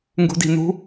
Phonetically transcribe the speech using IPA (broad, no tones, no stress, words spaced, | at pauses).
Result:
ŋɡṳdi̤nṳ